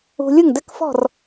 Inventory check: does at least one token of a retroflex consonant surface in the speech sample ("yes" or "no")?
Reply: no